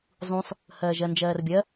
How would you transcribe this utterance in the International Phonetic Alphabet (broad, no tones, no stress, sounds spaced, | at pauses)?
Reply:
zˤ ũ sˤ | h ɜː ʒ ɜ n d͡ʒ ɜː r bʲ ɜ